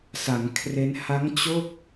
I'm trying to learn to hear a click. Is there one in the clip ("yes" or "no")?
no